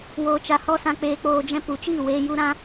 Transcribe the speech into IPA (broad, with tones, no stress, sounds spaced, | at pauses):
w oː˨ t͡ʃ a˨ h ɔ˧ s ã˧ k͡p eː˧ k͡p oː˧ d͡ʒ ɛ̃˦ p u˨ t͡ʃ iː˦˨ w eː˧ j u˦ ɾ ã˦